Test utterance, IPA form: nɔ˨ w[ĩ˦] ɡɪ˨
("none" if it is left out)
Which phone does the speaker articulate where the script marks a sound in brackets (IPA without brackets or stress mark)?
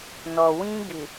ĩ˦